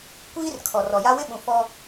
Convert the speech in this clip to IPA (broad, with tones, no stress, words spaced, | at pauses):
kʷiː˦rkʰɔ˨ rɔ˨ja˦wɪ˦ɓũ˨ fɔ˦